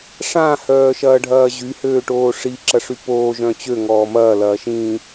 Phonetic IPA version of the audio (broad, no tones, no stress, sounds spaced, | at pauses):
ʂ ã h œː ʃ ɐː ɖʱ ɐː ʑ y h øː ʈ oː ʂ i ǁ ɐ ʂ y p oː ʒ œ̃ t͡ɕ ø ŋ ɔː m ɐː l ɐː ʃ ĩː